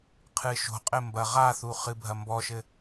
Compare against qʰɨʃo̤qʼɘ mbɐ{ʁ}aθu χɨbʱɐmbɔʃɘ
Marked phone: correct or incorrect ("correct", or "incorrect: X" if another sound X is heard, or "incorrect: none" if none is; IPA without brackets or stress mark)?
correct